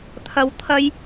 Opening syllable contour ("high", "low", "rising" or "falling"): low